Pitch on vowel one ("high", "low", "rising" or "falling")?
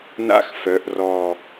high